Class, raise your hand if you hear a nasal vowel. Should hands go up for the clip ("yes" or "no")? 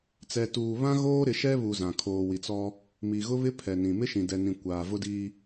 yes